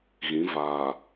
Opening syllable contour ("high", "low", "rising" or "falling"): rising